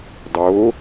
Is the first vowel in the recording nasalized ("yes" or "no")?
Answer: no